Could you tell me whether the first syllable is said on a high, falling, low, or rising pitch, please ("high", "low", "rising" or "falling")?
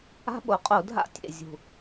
high